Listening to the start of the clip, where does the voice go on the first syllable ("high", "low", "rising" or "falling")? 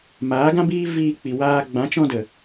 rising